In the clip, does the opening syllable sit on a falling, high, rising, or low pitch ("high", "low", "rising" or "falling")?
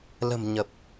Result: low